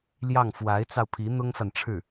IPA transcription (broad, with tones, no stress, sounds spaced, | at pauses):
l j ɑ˥˩ ŋ f w a˧˥ ɪ̯ t͡s ɑ˧ ʊ̯ pʰ i˧˥ n̪ ʊ˥ ŋ f a˨ n ʈ͡ʂʰ ɻ̩˥˩